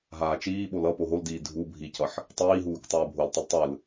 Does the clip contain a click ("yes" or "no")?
no